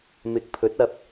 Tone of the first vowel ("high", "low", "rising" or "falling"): rising